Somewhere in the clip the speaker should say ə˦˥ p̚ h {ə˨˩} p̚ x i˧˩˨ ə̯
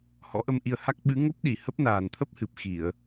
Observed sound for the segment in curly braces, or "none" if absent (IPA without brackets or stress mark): ɨ˨˩